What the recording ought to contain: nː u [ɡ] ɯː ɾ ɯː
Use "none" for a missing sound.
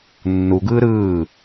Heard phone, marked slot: ɡ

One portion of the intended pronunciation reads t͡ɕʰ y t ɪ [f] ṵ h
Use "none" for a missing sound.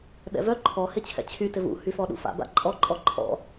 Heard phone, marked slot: v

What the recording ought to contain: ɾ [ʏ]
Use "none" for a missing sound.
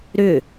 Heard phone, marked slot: ʏ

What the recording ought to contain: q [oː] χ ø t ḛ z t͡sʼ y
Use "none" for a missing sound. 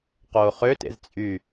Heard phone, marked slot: oː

